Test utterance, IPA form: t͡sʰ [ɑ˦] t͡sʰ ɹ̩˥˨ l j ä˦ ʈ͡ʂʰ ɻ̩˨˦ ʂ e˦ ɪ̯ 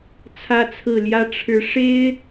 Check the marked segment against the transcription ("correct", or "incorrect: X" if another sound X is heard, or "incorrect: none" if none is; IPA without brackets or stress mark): incorrect: ä˦